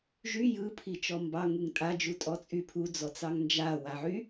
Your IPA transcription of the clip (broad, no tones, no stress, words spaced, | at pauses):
ʒy jɯpʰit͡ʃɔ mbɑŋuŋ tʼad͡ʒutʼɔt͡sʼy pʰud͡zɔt͡sɑŋ nd͡ʒawaʕy